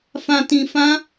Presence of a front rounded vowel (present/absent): absent